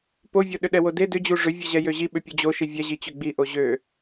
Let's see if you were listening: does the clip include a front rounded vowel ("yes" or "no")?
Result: yes